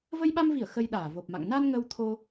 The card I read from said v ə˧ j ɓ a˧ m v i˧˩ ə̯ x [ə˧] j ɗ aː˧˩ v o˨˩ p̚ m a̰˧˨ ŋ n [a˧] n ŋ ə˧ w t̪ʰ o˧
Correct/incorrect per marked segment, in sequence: correct, correct

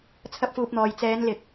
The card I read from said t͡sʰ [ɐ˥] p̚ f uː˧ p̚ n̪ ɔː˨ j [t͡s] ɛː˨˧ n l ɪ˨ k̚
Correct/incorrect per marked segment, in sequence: correct, correct

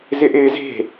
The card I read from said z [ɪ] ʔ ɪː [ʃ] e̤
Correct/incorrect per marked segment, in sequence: correct, incorrect

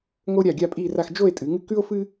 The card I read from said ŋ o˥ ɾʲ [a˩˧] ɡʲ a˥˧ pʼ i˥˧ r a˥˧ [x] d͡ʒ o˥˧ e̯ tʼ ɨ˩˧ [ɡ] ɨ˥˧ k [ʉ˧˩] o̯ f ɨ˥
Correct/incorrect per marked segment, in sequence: incorrect, correct, incorrect, incorrect

